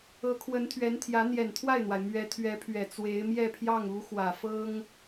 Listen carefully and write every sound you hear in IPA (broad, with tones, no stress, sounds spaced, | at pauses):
ɤ˧˥ kʰ w ə˧˥ n t̪ʰ ɥ ɛ˧˥ n t̪ʰ j ä˧˥ n̪ j ɛ˨˩ n t̪ʰ w a˥˩ ɪ̯ n̪ w a˩ ɪ̯ m ɥ ɛ˧˥ t̪ʰ ɥ ɛ˧˥ pʰ ɥ ɛ˨˩ t͡s w e˧˥ ɪ̯ m j ɛ˥˧ pʰ j ɑ˥˩ ŋ u˧˥ x w ä˨˩ f ɤ˥ ŋ